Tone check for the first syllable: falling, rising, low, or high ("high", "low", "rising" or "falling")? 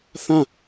falling